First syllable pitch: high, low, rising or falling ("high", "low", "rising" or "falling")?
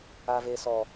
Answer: low